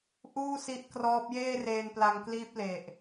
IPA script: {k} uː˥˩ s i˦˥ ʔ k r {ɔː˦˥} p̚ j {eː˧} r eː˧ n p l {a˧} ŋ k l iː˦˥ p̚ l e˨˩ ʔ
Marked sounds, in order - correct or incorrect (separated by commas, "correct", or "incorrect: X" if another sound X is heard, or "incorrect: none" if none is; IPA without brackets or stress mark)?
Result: incorrect: ʔ, correct, incorrect: eː˥˩, correct